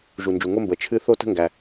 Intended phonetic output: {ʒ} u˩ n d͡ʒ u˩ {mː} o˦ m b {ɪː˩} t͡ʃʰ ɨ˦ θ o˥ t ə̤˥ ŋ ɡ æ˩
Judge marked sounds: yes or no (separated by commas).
yes, no, no